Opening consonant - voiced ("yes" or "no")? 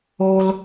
yes